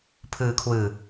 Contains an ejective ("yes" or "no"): no